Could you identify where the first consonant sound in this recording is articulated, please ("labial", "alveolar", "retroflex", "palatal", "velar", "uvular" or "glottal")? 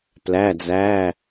labial